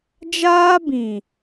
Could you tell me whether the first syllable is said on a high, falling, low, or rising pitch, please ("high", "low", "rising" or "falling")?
high